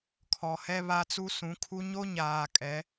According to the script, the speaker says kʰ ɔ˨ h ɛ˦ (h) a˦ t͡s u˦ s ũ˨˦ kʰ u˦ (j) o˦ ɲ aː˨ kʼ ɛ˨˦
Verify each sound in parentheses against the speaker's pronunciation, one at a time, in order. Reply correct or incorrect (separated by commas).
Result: incorrect, incorrect